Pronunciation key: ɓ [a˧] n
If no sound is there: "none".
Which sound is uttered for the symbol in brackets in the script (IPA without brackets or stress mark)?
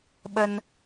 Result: ə˧